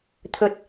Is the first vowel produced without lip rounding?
no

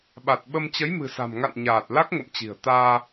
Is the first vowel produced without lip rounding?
yes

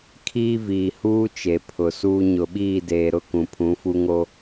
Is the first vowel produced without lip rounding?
yes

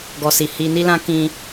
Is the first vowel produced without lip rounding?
no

